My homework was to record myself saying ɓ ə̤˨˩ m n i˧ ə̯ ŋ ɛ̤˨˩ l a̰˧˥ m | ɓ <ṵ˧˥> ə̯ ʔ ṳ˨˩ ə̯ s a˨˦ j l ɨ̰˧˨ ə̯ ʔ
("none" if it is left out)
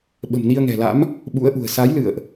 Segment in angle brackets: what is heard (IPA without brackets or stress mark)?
ṵ˧˥